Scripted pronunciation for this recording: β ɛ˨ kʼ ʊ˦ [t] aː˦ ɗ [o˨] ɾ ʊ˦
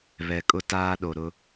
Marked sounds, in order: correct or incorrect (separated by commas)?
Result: correct, correct